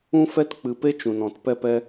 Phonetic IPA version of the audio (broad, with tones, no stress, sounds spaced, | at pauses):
ũ˦ f ɛ˦ t k͡p ɨ˧ p e˦ t͡ʃ ũ˧ n ɔ̃˧ t p ɛ˦ p ɛ˦